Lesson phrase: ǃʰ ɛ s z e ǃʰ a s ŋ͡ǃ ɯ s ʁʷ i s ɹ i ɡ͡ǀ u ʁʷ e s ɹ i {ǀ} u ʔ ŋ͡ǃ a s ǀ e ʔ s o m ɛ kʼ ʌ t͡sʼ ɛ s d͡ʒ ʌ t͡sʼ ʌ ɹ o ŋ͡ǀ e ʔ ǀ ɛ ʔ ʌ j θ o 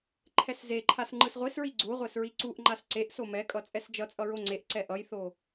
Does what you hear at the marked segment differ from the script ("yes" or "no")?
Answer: no